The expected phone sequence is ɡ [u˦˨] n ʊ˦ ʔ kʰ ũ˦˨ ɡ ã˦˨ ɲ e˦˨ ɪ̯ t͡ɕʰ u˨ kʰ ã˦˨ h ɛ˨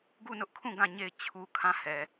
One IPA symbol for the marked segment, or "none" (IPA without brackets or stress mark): u˦˨